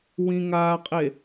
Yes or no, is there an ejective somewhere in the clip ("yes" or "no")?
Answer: yes